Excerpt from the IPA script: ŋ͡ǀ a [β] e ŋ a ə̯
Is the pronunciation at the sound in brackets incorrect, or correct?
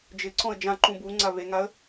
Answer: correct